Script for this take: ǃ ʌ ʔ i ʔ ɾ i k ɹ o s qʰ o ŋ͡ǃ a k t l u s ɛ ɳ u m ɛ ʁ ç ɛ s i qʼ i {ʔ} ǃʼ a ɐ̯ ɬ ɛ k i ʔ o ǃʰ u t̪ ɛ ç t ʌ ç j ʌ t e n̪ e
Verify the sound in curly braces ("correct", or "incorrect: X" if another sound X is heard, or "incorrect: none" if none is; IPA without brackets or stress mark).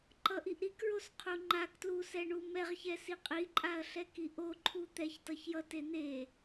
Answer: incorrect: none